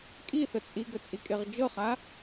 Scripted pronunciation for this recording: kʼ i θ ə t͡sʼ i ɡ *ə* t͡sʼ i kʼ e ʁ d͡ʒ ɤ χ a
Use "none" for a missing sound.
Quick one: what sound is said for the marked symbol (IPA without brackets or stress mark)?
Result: ə